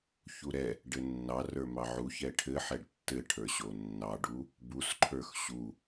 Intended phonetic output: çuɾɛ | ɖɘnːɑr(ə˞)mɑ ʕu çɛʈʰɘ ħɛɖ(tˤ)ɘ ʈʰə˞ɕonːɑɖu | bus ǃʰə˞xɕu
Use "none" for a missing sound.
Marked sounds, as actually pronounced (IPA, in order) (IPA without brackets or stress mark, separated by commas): ə˞, tː